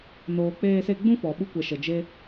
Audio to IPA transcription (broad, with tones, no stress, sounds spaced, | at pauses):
n oː˧ k͡p eː˦ s e˦ ɡ͡b ũ˦ f ɔ˨ ɓ u˧ kʷ ɛ˨ ʃ ə˨ d͡ʒ e˧